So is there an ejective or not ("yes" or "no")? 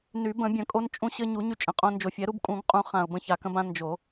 yes